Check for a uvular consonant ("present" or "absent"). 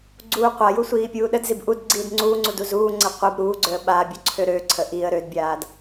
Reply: present